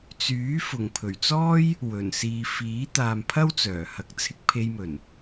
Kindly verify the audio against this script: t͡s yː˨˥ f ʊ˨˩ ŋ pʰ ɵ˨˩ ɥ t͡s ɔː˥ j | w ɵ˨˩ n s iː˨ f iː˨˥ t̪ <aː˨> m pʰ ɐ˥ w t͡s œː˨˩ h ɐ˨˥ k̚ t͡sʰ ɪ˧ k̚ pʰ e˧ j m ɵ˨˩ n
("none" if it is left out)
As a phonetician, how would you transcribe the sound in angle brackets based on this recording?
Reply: aː˨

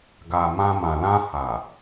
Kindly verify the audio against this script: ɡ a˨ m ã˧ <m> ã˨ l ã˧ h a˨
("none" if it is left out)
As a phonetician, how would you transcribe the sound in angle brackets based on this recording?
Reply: m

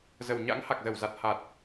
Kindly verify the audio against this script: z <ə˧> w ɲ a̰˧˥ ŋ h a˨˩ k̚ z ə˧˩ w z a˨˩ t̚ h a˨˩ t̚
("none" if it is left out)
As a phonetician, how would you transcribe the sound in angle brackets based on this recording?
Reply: ə˨˩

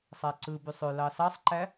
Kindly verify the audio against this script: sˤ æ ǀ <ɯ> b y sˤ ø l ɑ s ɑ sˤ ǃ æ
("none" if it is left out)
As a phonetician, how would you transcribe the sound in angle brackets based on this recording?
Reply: ɯ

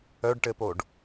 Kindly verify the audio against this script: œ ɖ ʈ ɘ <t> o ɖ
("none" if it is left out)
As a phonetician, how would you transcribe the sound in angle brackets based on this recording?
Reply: p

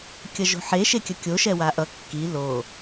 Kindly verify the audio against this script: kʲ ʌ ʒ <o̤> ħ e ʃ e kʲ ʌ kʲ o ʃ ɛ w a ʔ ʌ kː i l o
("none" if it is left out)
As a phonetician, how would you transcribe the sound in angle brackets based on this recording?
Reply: o̤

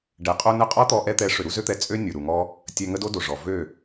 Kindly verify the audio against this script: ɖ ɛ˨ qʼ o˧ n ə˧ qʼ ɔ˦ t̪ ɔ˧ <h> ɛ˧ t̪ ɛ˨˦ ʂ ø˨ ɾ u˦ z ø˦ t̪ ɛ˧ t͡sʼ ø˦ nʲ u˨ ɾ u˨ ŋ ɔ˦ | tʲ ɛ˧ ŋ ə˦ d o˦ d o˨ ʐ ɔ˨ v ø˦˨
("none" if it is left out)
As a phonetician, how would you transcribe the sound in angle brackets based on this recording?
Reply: ʔ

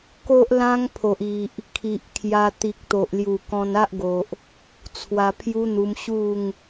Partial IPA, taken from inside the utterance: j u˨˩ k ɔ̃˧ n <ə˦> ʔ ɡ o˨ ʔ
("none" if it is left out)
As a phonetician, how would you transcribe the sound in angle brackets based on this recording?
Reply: a˦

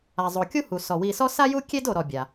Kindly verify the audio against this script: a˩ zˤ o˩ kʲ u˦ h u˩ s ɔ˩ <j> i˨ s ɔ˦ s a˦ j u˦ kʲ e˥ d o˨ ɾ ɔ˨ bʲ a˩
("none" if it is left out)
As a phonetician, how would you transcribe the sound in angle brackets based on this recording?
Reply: w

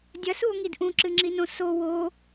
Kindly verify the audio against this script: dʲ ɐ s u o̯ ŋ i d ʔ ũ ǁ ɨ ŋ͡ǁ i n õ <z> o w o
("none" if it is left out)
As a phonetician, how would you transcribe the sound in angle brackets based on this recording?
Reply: s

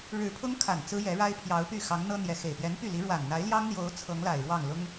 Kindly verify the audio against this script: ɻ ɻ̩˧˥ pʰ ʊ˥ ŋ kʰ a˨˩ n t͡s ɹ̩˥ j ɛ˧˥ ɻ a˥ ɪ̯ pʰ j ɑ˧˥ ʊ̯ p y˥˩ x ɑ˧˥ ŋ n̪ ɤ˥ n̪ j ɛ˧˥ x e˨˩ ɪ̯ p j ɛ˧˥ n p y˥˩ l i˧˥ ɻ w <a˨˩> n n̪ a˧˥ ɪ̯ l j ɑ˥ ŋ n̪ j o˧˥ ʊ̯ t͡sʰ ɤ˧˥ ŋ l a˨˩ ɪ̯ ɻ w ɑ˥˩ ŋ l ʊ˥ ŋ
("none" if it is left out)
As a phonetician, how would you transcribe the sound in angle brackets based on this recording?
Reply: a˨˩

